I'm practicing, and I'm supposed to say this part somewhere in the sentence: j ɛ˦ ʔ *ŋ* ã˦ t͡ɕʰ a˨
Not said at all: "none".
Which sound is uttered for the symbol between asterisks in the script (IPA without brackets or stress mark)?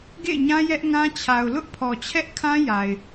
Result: ŋ